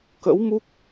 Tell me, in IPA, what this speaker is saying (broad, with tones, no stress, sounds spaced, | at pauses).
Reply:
k ə̰˧˥ w m u˦˥ k̚